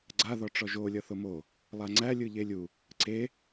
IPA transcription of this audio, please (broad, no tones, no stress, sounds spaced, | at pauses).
ɡ͡ǀ a ð ɔ ʈ͡ʂ ɔ ʒ o lʲ ʌ θ o m o | lˠ a ŋ͡ǀ æ lʲ ɯ ʎ e lʲ u | ǀ e